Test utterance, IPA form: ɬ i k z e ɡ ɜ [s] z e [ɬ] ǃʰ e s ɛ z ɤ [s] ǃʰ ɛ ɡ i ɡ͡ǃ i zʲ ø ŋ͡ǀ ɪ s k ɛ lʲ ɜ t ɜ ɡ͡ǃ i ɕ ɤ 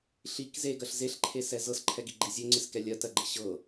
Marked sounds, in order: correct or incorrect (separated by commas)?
incorrect, correct, correct